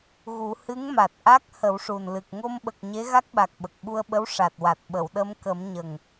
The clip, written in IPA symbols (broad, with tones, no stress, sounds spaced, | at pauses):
ɣ u˨˩˦ h ɨ˧˥ ŋ m a˨˩ t̚ ʔ a˦˥ k̚ h ə˨˩˦ w ʂ u˨˩ n l ɨ˨˩ k̚ ŋ o˧ m ɓ ə˨˩ k̚ ɲ e˧˥ ɣ a˦˥ k̚ ɓ a˨˩ k̚ ɓ ə˨˩ k̚ ɓ u˧ ə̯ ɓ ə˧˥ w ʂ a˨˩ t̚ w a˨˩ t̚ ɓ ə˨˩˨ w ɗ ə˧ m k ə˨˩˦ m ɲ ə˨˩ ŋ